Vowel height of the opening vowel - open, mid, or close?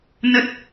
mid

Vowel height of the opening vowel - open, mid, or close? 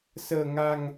mid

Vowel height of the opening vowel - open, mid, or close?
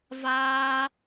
open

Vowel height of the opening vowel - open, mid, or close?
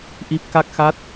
close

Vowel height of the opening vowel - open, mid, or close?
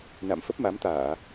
open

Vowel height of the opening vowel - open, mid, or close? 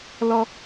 mid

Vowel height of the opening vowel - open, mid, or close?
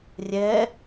mid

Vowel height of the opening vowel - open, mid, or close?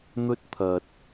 mid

